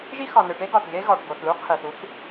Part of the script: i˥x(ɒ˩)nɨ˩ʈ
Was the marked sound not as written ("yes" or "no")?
no